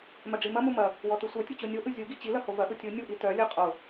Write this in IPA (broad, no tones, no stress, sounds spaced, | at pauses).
m ɐ ɖ͡ʐ i m ɐ m u m ɐ | w ɔ t ɯ sʷ œ tʲ ɯ t͡ɕ o nʲ o ʔ ɯ zʲ u ɡ i t͡ɕ i l ɐ h o v ɐ ʔ ɯ tʲ ɯ nʲ u ʔ i t œ lʲ ɯ qʼ o